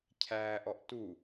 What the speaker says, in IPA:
cʰ æː ʔ ɔ ʔ t u

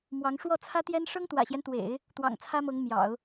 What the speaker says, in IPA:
m w ɑ˧˥ ŋ ʂ w ɔ˥˩ t͡sʰ ä˥ t̪ j ɛ˥ n ʂ ɤ˥ ŋ t̪ w ä̰˨˩ ɕ j ɛ˦ n t̪ w ḛ˨˩˦ ɪ̯ | t̪ w ɑ̰˨˩ ŋ t͡sʰ ä˥ m ɤ˧˥ ŋ m j ɑ̰˨˩˦ ʊ̯

